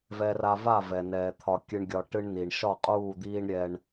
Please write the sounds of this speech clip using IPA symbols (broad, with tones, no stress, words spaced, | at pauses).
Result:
vɛ˨ra˨va˦˨ vɛ˨nɛː˨ t̪ʰɒ˨kʲɨ˨ɳɡʲɒ˨ ʈɨ˦ɳni˨ɳ ʃɒ˦˨qʼuː˦˨d̪iː˦ɳ ɾʲɛ˦ɳ